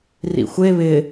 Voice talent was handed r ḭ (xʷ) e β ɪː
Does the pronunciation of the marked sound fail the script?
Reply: no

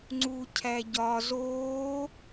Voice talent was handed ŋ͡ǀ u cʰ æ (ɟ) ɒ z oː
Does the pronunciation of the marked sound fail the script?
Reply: no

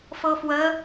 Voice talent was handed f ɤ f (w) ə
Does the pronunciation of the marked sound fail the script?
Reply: no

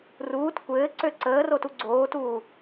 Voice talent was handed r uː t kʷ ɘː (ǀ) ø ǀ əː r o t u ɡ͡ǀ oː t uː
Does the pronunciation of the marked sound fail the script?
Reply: no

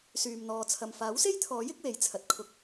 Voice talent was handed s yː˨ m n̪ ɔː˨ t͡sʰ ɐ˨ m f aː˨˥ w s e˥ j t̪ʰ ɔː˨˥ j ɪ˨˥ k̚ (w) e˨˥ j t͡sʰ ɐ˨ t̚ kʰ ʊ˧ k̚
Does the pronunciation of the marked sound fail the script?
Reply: no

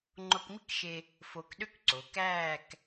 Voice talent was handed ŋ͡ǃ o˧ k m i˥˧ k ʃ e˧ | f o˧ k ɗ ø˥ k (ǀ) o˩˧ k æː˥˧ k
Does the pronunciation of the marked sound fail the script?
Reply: no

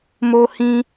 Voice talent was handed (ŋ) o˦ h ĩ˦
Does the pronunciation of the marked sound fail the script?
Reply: yes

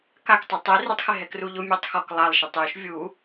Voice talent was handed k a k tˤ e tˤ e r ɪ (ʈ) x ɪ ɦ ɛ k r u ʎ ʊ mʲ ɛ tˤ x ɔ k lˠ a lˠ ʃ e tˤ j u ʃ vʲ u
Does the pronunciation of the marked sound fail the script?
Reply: yes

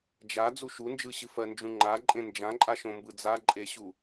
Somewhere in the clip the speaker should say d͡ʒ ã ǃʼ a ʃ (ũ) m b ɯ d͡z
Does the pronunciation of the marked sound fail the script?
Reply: yes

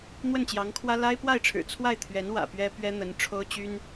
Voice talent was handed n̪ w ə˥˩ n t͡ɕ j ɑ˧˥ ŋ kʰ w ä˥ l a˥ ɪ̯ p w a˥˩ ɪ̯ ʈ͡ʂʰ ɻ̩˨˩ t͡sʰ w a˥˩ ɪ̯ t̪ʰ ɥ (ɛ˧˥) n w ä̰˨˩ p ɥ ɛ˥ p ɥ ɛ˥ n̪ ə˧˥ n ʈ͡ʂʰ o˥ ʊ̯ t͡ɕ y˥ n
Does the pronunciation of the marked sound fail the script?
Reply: no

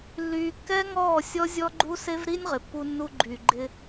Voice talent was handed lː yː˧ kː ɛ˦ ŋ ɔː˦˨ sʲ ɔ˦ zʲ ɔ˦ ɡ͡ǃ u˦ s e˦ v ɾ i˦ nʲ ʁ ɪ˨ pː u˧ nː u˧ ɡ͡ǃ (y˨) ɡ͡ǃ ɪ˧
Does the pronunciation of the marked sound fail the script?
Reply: no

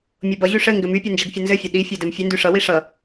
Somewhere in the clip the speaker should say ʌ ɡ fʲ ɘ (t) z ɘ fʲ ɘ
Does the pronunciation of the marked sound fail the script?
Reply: yes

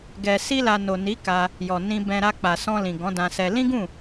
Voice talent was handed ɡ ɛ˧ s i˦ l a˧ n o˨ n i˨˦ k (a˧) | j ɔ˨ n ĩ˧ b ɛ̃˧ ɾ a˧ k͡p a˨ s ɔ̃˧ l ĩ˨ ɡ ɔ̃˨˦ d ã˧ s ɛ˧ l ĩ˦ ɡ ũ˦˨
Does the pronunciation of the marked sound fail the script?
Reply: no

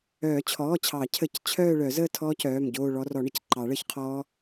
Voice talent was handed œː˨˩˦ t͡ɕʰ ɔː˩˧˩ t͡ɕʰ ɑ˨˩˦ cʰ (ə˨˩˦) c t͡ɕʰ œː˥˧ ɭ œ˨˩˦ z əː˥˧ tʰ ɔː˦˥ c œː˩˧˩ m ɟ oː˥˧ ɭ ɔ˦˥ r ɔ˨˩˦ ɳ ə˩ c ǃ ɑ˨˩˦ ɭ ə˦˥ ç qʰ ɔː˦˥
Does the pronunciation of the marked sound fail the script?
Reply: no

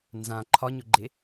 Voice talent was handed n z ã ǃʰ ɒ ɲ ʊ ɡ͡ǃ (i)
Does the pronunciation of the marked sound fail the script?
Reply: yes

